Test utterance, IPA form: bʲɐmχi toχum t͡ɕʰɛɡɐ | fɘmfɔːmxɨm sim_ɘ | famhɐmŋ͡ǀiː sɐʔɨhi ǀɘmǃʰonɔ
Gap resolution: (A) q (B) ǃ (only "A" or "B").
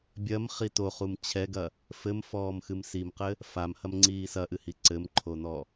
A